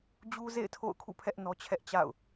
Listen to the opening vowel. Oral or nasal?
oral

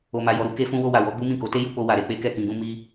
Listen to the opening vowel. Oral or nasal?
oral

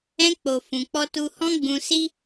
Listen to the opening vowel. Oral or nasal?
nasal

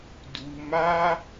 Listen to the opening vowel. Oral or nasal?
oral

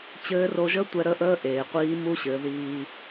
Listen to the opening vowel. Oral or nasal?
oral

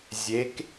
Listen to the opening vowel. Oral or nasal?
oral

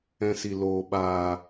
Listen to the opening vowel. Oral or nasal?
nasal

